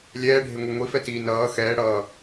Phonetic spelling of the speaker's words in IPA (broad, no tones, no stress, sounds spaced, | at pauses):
lʲ ɛː ɖʱ e ŋʷ e ŋʷ i f ɛ t iː n ʌː x ɛː ɽ ʌː